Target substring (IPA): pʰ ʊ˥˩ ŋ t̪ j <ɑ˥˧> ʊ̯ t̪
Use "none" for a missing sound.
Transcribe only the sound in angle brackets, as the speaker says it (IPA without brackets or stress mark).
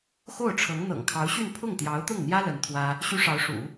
ɑ˧˥